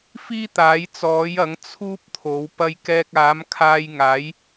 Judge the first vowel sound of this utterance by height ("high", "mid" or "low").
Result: high